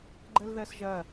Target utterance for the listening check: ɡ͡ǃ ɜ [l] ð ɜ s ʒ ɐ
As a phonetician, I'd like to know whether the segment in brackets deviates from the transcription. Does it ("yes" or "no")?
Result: no